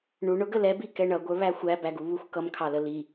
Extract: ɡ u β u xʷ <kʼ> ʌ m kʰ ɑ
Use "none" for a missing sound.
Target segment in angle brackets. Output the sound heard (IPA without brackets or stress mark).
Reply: k